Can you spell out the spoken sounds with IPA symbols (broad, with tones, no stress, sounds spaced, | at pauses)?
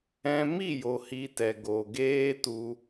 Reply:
ɛ̃˧ m i˦˨ j o˨ h i˧ t ɛ˨ ɡ o˨ ɡ eː˦ t u˧